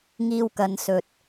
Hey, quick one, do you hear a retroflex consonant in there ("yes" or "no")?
no